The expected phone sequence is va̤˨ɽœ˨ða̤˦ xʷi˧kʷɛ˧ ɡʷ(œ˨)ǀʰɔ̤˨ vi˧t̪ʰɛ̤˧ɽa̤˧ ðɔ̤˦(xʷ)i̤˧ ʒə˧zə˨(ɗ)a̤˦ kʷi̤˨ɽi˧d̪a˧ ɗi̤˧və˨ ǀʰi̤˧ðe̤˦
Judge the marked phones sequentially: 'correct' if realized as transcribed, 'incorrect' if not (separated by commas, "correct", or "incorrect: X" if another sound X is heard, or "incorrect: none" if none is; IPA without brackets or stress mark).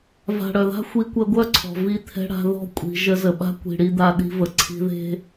incorrect: œ˦, incorrect: kʷʼ, incorrect: ɓ